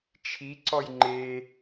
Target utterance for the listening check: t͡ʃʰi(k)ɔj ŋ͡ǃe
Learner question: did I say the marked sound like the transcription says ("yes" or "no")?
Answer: no